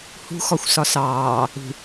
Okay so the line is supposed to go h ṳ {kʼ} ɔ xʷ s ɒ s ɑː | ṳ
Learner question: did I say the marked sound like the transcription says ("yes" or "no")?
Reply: no